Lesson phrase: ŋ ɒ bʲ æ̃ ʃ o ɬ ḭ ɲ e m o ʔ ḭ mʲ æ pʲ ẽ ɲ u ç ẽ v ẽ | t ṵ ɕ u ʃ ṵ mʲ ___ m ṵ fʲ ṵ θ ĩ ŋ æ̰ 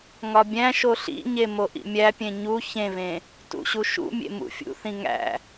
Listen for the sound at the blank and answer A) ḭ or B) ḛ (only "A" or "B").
B